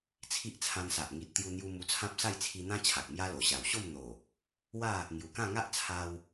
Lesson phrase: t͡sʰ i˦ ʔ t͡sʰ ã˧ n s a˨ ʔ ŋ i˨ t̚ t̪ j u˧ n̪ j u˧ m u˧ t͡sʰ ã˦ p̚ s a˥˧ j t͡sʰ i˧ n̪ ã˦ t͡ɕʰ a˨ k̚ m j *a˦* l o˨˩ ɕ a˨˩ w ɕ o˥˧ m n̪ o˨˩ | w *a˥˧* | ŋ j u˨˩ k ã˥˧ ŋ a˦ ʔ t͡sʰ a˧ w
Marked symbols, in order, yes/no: yes, yes

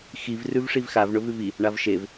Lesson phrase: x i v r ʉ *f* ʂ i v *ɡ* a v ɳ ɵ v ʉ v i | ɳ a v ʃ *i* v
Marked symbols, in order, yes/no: no, no, no

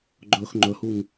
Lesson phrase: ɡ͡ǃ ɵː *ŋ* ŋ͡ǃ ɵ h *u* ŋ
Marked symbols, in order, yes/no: no, yes

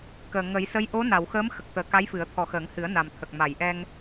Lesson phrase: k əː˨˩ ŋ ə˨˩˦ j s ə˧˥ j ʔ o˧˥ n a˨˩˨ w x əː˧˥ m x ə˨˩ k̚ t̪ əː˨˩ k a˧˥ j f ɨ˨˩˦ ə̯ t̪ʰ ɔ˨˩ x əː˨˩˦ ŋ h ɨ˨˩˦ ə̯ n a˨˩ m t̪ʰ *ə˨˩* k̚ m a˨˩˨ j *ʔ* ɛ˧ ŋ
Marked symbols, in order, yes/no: yes, yes

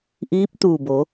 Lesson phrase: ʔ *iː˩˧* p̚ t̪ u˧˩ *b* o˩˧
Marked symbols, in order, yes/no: no, yes

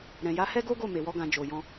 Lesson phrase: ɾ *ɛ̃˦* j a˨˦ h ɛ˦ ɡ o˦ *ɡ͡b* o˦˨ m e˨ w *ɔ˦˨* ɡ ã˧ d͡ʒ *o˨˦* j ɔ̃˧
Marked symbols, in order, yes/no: no, no, no, no

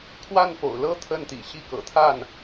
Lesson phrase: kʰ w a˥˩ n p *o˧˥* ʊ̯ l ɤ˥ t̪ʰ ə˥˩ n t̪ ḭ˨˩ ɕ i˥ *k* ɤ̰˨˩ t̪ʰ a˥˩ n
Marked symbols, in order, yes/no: no, yes

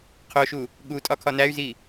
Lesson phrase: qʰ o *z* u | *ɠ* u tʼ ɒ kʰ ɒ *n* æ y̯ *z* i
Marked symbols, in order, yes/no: no, yes, yes, yes

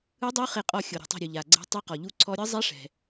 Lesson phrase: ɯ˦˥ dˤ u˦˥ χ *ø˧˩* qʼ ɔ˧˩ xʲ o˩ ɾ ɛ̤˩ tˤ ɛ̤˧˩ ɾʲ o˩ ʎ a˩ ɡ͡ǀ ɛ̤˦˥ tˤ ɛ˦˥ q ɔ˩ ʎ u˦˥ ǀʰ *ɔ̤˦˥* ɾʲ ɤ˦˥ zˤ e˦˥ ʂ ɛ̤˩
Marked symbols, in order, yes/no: no, no

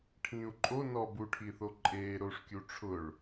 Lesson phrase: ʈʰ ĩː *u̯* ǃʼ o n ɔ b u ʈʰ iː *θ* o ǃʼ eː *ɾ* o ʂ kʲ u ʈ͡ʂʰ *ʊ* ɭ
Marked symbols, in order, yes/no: yes, yes, yes, yes

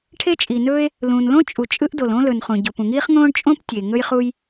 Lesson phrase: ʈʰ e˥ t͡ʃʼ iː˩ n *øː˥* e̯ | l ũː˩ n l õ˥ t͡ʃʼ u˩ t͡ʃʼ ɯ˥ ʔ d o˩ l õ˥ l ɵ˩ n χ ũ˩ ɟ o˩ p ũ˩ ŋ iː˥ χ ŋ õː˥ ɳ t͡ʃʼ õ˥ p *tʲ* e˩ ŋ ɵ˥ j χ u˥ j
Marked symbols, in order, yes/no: no, yes

